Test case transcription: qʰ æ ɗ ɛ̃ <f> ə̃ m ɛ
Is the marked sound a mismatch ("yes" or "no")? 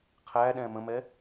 yes